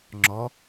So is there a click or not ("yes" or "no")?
yes